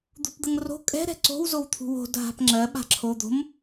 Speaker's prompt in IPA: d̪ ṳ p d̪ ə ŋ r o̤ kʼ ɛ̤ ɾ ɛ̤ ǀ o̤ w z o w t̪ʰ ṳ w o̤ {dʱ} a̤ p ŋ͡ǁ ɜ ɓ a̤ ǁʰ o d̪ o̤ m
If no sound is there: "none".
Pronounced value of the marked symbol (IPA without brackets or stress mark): dʱ